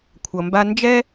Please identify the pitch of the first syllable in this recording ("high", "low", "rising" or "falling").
low